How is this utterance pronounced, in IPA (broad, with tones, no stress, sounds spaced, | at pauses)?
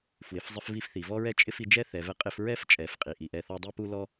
f w ɪ˩ f zˤ ɪ˧ f v i˧ f θ i˩ v ɔ˥ ɹ ɛ˥ t͡ʃʼ ɪ˥ f i˧ d͡ʒ ɛ˥ θ ɛ˩ v ɛ˧ qʼ ɪ˧ f ɹ ɛ˥ f t͡ʃʼ ɛ˩ f qʼ i˩ ʔ i˩ ʔ ɛ˧ θ ɔ˥ dˤ i˥ p u˥ l ɔ˥